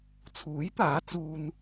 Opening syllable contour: rising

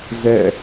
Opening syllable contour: falling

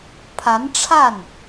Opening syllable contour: rising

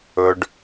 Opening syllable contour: low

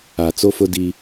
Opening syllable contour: low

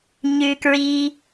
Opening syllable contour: high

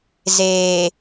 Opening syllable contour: low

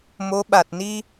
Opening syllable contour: rising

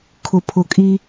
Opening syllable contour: low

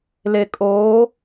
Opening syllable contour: low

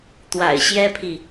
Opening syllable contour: low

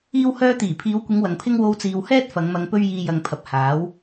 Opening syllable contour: high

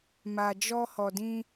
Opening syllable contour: low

